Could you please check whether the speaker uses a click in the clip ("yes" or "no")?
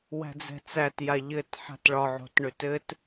no